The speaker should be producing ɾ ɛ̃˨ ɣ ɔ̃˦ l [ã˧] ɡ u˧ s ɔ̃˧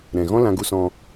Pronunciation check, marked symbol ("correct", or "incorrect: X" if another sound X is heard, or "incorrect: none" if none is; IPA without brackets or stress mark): correct